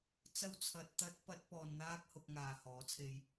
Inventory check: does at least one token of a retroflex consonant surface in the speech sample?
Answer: no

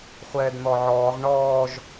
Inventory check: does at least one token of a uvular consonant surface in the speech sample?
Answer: yes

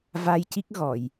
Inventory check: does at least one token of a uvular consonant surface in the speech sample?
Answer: no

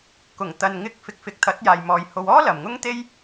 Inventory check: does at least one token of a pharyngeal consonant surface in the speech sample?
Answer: no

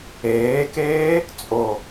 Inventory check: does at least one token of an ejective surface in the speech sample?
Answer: yes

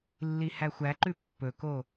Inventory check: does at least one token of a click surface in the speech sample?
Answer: yes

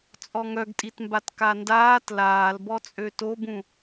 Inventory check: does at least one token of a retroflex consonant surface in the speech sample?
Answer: no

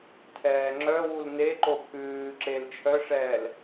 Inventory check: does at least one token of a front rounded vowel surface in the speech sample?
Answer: yes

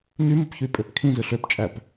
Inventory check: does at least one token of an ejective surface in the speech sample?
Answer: yes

